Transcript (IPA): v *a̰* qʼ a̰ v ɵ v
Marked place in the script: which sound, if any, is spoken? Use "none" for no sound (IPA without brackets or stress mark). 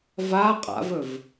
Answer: a